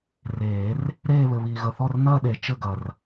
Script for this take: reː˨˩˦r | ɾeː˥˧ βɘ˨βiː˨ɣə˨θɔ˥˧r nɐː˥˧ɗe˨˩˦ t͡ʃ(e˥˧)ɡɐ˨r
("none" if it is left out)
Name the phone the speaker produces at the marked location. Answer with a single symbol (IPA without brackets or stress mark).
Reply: ɘ˥˧